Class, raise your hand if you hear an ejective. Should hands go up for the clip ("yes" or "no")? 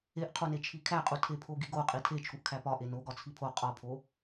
yes